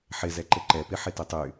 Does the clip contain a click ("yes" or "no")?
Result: yes